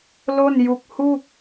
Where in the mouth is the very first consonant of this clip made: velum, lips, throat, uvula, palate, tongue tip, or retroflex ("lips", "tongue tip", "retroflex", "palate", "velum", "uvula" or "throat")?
tongue tip